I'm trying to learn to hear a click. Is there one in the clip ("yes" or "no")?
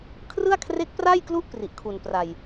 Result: no